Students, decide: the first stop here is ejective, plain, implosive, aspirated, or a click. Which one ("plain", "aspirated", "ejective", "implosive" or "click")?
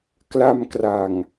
plain